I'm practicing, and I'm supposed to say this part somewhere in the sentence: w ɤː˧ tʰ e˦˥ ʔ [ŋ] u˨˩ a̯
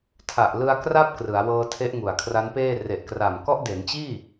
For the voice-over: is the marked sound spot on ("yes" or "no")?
yes